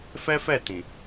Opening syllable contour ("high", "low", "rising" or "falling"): high